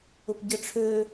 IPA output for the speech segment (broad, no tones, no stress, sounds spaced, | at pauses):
ʊ p ɟ ə ʈ͡ʂʰ ø